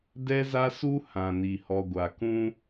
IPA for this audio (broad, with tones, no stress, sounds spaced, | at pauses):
d ɛ˦ z a˦ s u˦ h ã˨ n i˨ h ɔ˨ ɡʷ a˨ k ũ˦